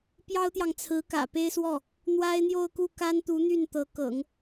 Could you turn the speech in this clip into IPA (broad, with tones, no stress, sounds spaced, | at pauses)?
p j ɑ˥ ʊ̯ t̪ j ɑ˨ ŋ t͡sʰ ɹ̩˧˥ k ä̰˨˩ p e˥ ɪ̯ s w ɔ˥˩ | n̪ w a˥ ɪ̯ n̪ j o˥˧ ʊ̯ k u˥˩ k a˥ n t̪ u˧˥ n̪ y˥˩ n t̪ ɤ˧˥ k ɤ̰˨˩˦ ŋ